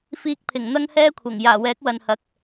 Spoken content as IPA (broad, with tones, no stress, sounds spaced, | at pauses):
f iː˧ k̚ pʰ ɪ˨˩ ŋ n̪ ɐ˥ ŋ h ɛː˥ kʷʰ ɐ˨˩ ŋ j aː˨˩ w ɛː˨˥ k̚ w ɐ˨ n h ɐ˨ k̚